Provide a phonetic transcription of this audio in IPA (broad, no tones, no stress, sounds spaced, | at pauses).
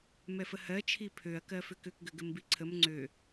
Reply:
m ɛ f ə h ɜ t͡ʃʰ i pʰ ø ɐ̯ k ɜ f ʏ k ʏ k ɡ ʏ ɡ ɘ m b i ǀʰ ə m ŋ͡ǀ ø